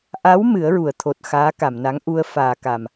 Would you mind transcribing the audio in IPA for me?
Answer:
ʔ a˧˥ w m ɨ˨˩˦ ə̯ ɹ u˨˩˨ ə̯ t̪ʰ o˨˩ t̚ x aː˧˥ k a˨˩˨ m n a˧˥ ŋ ʔ u˧ ə̯ f aː˨˩ k a˨˩ m

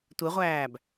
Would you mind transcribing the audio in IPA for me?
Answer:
tʷ e ʁʷ æː b

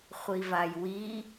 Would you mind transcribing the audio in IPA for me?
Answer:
χʷ i v a j w i

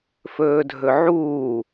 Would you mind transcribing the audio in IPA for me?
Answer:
f ɵː dʱ ɵ ʕ uː

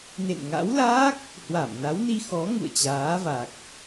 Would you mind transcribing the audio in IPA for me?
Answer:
n ḛ˧˨ n ŋ a̰˧˥ w l aː˦˥ k̚ | h w a˧˩ m n a˨˦ w n i˧ x ɔ˨˦ ŋ ṵ˧˨ ə̯ t͡ɕ aː˨˦ v a˨˩ k̚

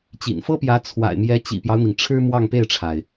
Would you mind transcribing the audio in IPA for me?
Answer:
t͡ɕ ḭ˨˩ n f ɤ˥ p j ä˧˥ t͡sʰ w a̰˨˩ ɪ̯ m j ɛ˧˥ t͡ɕ ḭ˨˩ p j ɑ˦ ʊ̯ n̪ i˩ ŋ ʈ͡ʂʰ ɻ̩˥ m w ɑ˥˧ ŋ p e˥˩ ɪ̯ ʈ͡ʂʰ a˩ ɪ̯

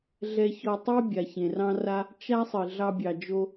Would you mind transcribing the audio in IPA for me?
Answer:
ɮ ɛ˧ ç ɔ˧ tˤ e˥ bʲ a˩ ç ẽ˩ r ɑ̃˥ r a˥ | t͡ʃ a˥ sˤ ɨ˩ ɮ ɑ˧ bʲ ɑ˩ d͡ʒ o˧

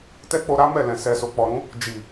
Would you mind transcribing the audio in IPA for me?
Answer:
t ɛ˦ k͡p o˧ ɾ a˦ m ɛ˦˨ l ɛ̃˨ s ɛ˨ s o˨ k͡p ɔ˨ ɾ ũ˨˦ | d͡ʒ i˨

